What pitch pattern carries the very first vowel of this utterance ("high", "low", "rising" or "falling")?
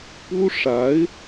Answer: high